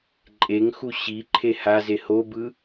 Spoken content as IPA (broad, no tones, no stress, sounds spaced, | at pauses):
ǃʼ e ŋ x u ɕ i ǃʰ e h a z e h o b ɯ